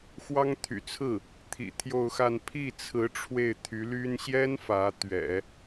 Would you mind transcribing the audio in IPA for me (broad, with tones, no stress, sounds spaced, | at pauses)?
x w ɑ˥ ŋ t̪ʰ y̰˨˩ t͡sʰ ɹ̩˥˩ | t̪ʰ ḭ˨˩ t̪ʰ j o˥˧ ʊ̯ x a˥˧ n pʰ i˥˩ t͡sʰ ɹ̩˧˥ ʈ͡ʂʰ w e˥˩ ɪ̯ t̪ʰ y˧˥ l y˥ n ɕ j ɛ˥ n f ä˧˥ t̪ ɥ ɛ̰˨˩˦